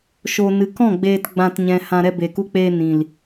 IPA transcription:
ʃ o˨ n ɨ˨ k ɔ̃˦˨ ɡ͡b eː˨ t ɡ͡b ã˨ t ɲ ɛ̃˨ h ã˨ ɾ ɛ˧ b e˨ k u˧ k͡p eː˧ n ĩ˨ l

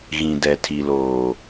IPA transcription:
ɣ ĩ˨ d ɛ˨ tʰ i˨ l oː˨

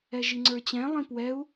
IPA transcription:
ɛ ʒ i ŋ͡ǀ ə˞ t͡ɕ ɛ̃ lˠ ĩ p w ɛ u̯

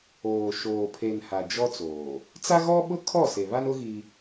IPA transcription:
oː˨ ʃ oː˨ pʰ e˨ n h a˨ d͡ʒ ɔ˦ t͡s oː˨ | t͡s a˦ ɣ ɔ˦ ɓ ʊ˦ kʰ ɔ˦˨ s e˨ β a˦ n ʊ˦ ɣ i˦

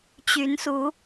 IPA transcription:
t͡ɕ y˨˦ n s u˨˦

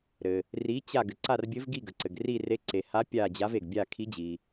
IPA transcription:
ɾ ɘ˩ | r i˧˥ t͡ɕ a˦˨ ɡ ɘ˩ ǀ a˦˨ r bʲ ɘ˧˥ v ɡ i˦˨ ɡ ə˩ ǀ ɘ˩ ɡ r i˦˨ r e˧˥ ǀ e˩ h a˧˥ pʲ a˦˨ d͡ʑ a˧˥ v e˩ ɡ bʲ a˦˨ kʰ i˧˥ d͡ʑ i˩

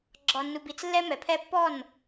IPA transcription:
ɡ͡ǁ ɒ˨ nː u˨ b i˨ t͡s lː ɛ˦ m ɛ˨ pʰ ɛ˦ pː ɔ˦˨ n

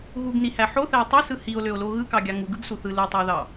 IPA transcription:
ɣ u ɡ n i h æ ħ o θ æ e̯ tˤ u s ɯ h i o̯ l ø o̯ l o ɣ ɯ k ɑ ɡʲ ɑ ŋ u ɡ ɯ ɡ s u θ ɯ l u tˤ i o̯ ð ɑ

